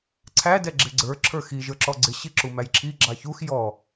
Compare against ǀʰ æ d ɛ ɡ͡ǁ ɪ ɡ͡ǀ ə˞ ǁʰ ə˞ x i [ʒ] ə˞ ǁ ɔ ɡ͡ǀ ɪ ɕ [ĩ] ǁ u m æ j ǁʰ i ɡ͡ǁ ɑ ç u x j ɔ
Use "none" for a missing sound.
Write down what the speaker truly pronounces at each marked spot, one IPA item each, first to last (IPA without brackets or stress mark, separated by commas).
ʒ, i